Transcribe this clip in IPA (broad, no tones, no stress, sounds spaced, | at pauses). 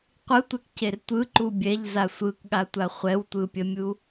qʷ ɯ tʷ ɛ k c e r tʷ ɯ ǃ u bʲ ɛ ʎ z a sʷ ɯ k ɠ a tʷ a χʷ ɛ w tʷ ɯ pʲ ə mʲ u